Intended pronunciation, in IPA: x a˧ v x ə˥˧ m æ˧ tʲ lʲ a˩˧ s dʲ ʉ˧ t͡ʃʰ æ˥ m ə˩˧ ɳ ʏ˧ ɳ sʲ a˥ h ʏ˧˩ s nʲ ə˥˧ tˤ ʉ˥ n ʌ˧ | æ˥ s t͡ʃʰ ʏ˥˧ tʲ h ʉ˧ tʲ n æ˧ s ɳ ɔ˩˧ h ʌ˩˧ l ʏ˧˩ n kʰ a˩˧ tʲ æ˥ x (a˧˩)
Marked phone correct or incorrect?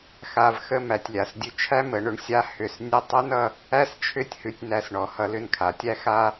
incorrect